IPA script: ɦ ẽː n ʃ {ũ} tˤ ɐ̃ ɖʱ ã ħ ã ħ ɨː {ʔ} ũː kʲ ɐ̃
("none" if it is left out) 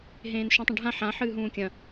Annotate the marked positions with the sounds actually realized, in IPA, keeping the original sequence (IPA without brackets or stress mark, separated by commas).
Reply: ũ, ɦ